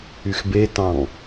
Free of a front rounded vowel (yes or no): no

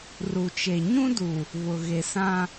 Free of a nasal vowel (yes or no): no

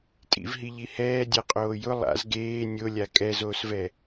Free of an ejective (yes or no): no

